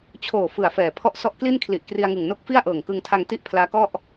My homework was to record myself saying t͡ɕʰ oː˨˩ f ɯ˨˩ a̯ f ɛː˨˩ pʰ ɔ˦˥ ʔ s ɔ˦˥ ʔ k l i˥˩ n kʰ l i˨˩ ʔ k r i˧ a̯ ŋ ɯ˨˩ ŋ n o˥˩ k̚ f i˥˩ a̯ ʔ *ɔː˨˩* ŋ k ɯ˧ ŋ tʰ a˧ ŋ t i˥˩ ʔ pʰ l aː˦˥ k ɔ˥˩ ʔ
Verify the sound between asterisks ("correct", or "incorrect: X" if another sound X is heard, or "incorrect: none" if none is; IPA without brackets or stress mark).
incorrect: ɤː˨˩